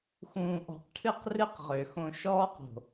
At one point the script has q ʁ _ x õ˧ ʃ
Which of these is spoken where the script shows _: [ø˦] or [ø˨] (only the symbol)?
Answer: ø˨